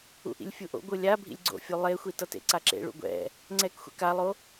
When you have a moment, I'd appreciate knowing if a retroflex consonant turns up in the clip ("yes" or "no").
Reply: yes